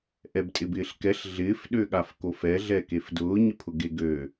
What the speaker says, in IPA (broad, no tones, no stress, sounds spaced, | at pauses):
ʔ ɛ b tʼ ɪ b ɪː ɬ k ɛ ɬ ɮ ɪː f ɗ ø ɠ a f k o f ɛ ɮ ɛ k e f d ʊː ɲ ɪ pʰ ʊ ɡ e ɡ ø